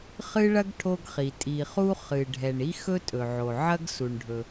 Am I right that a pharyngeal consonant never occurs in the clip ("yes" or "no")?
no